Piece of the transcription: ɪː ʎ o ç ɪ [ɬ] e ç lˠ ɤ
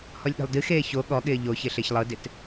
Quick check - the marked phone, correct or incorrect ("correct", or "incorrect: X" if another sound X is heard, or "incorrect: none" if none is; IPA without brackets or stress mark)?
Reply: correct